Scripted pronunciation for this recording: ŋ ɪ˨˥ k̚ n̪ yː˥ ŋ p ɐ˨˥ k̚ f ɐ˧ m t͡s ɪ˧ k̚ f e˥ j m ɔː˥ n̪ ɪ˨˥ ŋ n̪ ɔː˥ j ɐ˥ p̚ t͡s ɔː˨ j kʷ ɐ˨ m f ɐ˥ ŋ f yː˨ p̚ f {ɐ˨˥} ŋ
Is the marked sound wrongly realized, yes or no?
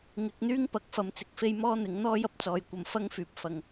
yes